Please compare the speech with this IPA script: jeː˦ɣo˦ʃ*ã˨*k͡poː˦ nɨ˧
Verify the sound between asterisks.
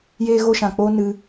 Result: correct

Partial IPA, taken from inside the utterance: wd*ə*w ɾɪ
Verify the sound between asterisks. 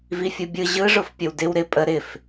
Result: incorrect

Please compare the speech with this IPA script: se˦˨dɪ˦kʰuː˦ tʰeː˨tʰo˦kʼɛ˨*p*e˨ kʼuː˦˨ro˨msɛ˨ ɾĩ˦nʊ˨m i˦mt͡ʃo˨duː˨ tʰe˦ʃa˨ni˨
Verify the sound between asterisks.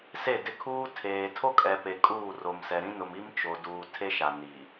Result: correct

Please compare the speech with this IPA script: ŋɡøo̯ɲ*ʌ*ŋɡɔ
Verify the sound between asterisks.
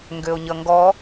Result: correct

